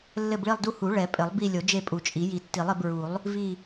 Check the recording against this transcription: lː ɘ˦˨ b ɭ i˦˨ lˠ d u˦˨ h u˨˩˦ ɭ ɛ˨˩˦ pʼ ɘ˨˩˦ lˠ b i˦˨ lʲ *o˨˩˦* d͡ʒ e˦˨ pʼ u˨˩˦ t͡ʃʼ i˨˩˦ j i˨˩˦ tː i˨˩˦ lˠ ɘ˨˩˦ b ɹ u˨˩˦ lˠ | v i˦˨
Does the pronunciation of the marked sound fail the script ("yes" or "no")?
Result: no